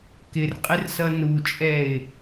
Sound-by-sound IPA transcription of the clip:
kɪrqʼɪrsʌ nut͡ʃʼɛɪ̯

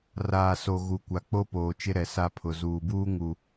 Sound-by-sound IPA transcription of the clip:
raː˨so˨ ɣu˨kʷa˨ k͡po˦poː˨t͡ʃɪ˦ɾɛ˨ sa˦ pʰʊ˨zuː˨buː˦ ŋu˨

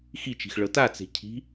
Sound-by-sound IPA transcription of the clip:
xit͡ʃi̤x ɭɤtat͡se̤ cʰi̤

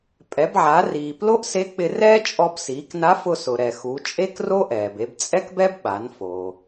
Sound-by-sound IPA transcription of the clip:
pʼɛ˩˧bʕa˩˧riː˩ plo˥ʔse˧˥k͡pɪ˧rɛː˥ t͡ʃʼɔ˧bsiː˩˧kna˧˥fʊ˧ sʊ˩ɾɛ˩xu˩˧ t͡ʃʼe˥kro˥ʔɛː˩b e˧b t͡sʼɛ˥kbɛ˥b ɓa˩˧n fo˩

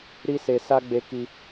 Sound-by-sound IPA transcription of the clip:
ɾi˦ se˧sa˦ ɡ͡be˧ki˧

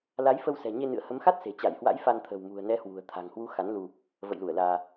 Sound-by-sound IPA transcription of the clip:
la˨˦jfə˧wsɛ̤˨˩ ɲe˧nɨ̰˧˨ə̯hə˨˦mxa˦˥t̚ se̤˨˩t͡ɕa˧˩jhwa̰˧˥j fa˧n t̪ʰə̤˨˩wmṳ˨˩ə̯nɛ˨˦hwṳ˨˩ə̯ t̪ʰa̤˨˩ŋhwu˨˦ xa˨˦nlu˧ | və̰˧˨jlu˧˩ə̯laː˧

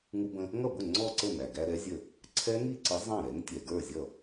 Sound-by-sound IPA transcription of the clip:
ŋu˧bə̃˧ | ŋʌ˥˩bʊ˥˩ ŋ͡ǀɔ˥˧ǀə˥˩ næ˩ɡæ˧ ɾɛ˨˥zʲə˥˩ | ǀʰɛ˦˥ŋi˥˧ǀə˨˥ zˤɑ̃˥˩ɾɛ˨˥ŋ tʲɛ˩ɡə˞˥˩zʲʌ˥˩

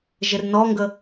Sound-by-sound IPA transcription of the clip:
ʒɪrnɔŋɡə

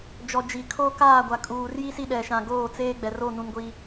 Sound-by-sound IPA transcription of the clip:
d͡ʒɔ˨d͡ʒi˨kʰoː˦ kaː˦˨ɡʷa˨kʼuː˨rji˦ si˦ɗɛ˨ʃã˨ɡoː˦˨ t͡seː˦ɡ͡bɛ˨ro˦˨ nũ˦nɡʷi˦

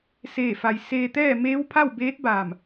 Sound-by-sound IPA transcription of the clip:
seː˧˩fa˩j seː˧t̪ɛː˥˨ meː˧˥wpʰa˥˨wbeː˧˥t̚baː˧˩m

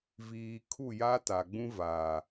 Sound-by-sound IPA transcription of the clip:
viː˨kʰu˦˨ ja˦ta˨ɡ͡bũ˦ vaː˨

